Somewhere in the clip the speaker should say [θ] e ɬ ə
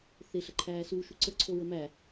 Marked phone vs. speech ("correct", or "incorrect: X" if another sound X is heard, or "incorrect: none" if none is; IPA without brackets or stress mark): correct